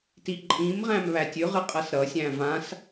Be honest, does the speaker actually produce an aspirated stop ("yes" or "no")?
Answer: no